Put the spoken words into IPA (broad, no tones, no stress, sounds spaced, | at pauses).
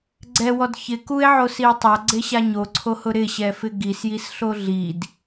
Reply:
ɡ͡ǀ ɛ w ɔ d ç ɪ k u e̯ ʕ o s i o̯ tˤ a ɡ͡ǀ e ɕ a ɲ o ǀʰ o h ʊ ɾ ɪ ɕ ɛ f ɪ ɡ i s j i s ɬ o ɮ i d